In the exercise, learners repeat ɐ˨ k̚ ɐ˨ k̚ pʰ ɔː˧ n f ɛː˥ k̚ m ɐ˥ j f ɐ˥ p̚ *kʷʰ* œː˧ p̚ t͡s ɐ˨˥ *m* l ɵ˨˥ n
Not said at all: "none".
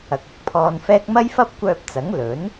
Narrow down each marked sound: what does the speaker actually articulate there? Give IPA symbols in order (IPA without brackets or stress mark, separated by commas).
kʷ, ŋ